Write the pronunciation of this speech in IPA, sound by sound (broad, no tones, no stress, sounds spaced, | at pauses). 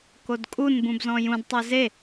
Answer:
k o d kʼ u n b ũ b z ɔ̃ j ũ d tˤ œ z e